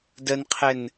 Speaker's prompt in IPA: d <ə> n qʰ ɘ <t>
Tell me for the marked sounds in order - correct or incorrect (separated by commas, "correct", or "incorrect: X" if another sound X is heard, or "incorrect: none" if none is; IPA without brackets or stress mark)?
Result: correct, incorrect: n